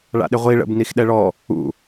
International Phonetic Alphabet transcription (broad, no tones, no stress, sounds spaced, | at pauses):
ɭ a̰ ɗ ɪ ʁʷ i ɭ ə̰ b n i x ɗ ɛ ɭ ɔ | ṵ